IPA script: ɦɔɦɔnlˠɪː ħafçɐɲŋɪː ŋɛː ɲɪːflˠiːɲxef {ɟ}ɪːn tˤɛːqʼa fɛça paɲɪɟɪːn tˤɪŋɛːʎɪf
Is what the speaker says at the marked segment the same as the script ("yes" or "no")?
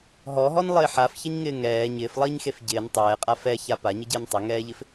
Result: yes